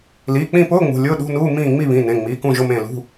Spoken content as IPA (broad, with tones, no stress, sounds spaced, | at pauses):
l iː˩˧˩ k͡p ĩ˦˨ p ʊː˧˥˧ ŋ͡m ṳ˩˧˩ lʲ ʊː˧˥˧ ɗ ṳ˧˥˧ n uː˧˥˧ m ĩː˦˨ ŋ͡m i˦˨ β ĩ˩˧˩ n ẽ˩˧˩ ŋ͡m iː˩˧˩ k ũ˦˨ ʒ ʊ˧˥˧ m ẽ˦˨ l ṳ˧˥˧